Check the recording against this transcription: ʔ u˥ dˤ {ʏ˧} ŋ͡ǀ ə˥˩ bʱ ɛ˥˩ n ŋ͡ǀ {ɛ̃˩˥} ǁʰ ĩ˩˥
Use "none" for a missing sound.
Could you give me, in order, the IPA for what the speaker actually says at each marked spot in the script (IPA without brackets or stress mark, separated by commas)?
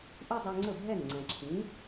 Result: u˧, ɛ̃˩